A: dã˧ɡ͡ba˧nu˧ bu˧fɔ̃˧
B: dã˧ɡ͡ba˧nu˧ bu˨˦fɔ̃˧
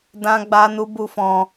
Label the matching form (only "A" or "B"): A